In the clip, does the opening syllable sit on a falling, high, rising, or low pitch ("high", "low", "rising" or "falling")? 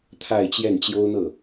falling